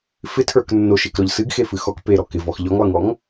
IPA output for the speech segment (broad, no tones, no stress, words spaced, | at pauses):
fɪtʰə˞k nːoʃekɾɔʎ sɨɡxefɨ xɔk peɾɔ kɪvɔx ʎɔŋlˠɨŋɔŋ